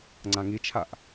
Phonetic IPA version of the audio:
ŋ͡ǀ ã ŋ i t͡ʃʰ a ʔ

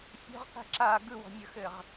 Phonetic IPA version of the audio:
fʲ ɔ̤ ʁ k a̤ ǁ a ɡ ɯ w ɔ̤ mʲ ə x ɘ ʁ

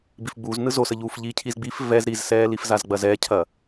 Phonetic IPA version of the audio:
b i f ɡ͡b uː z n ɯ z o s ə ʎ uː f ʎ i cʰ i z ɡ͡b i f v ɛ z ɾ i z s ɛː l i f z a z ɡ͡b ɐ z ɛ cʰ ɐ

